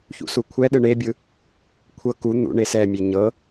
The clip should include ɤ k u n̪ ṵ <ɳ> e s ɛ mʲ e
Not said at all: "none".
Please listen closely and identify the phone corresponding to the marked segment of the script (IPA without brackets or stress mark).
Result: ɳ